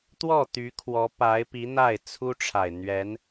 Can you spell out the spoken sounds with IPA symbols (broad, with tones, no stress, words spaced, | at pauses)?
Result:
t̪wɔ˥˩t̪y˧˥ kʰwɔ˧˥pa˧˥ɪ̯pi˧˥ n̪a˥˩ɪ̯t͡sʰu˥ʈ͡ʂʰa˨˩ɪ̯ n̪ɥɛ˧˥n